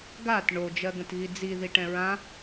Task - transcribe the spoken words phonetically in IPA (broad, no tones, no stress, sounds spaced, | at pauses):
ɡ a t ɳ o d͡ʒ ɜ ɡ ə̃ t ɣ i d͡z i ð i ʈ ɛ̃ ɹ ã